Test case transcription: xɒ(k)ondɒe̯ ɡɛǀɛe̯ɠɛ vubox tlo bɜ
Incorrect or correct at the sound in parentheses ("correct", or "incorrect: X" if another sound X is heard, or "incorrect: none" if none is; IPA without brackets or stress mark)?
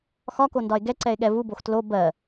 correct